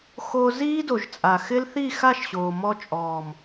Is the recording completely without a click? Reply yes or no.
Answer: yes